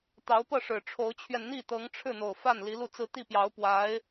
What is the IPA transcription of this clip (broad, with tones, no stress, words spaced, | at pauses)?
t̪ɑ˧˥ʊ̯pɤ˥˩ ʂɻ̩˨˩ʈ͡ʂʰo˧˥ʊ̯t͡ɕʰɥɛ˧n n̪i˥˩t̪ɤ˧˥ŋ ʈ͡ʂʰɻ̩˥˩n̪o˨˩ʊ̯fa˥˩n li˧˥lu˥˧t͡sɹ̩˥˧ t̪i˥˩pjɑ˧˥ʊ̯ pwa˧˥ɪ̯